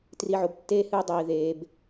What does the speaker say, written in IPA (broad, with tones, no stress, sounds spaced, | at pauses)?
t r i˨ ʕ o˨ b tː eː˦ h ɨː˦ dˤ iː˨ ð eː˨ b